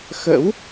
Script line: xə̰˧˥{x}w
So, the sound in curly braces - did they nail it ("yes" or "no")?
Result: no